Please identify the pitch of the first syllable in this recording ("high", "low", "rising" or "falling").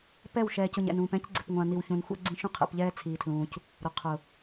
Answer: falling